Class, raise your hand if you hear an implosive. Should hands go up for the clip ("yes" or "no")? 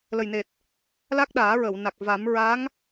yes